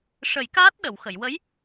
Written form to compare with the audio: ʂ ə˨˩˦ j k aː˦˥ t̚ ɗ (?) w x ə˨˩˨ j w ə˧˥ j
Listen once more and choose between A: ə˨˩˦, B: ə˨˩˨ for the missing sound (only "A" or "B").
B